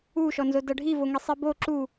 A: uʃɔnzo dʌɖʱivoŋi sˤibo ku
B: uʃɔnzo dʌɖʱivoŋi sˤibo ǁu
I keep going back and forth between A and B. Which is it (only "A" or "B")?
B